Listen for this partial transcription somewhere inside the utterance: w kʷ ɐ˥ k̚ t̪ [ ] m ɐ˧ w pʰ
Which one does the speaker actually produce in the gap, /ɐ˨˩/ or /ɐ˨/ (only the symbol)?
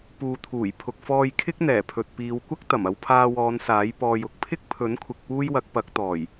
ɐ˨˩